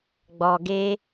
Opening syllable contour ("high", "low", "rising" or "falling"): low